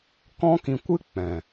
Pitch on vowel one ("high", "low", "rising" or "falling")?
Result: high